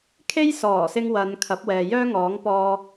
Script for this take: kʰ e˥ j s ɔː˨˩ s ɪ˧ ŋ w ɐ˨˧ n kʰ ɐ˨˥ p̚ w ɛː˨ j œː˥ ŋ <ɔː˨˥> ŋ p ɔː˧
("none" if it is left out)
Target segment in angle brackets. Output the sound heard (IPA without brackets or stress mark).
ɔː˨˥